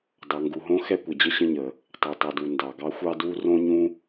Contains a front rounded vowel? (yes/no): no